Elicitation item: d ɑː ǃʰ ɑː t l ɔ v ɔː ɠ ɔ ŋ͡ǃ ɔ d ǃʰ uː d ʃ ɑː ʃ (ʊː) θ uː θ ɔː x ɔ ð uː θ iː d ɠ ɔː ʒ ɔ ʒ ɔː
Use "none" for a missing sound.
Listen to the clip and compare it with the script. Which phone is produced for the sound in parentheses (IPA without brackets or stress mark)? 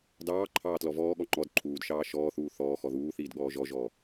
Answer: ɔː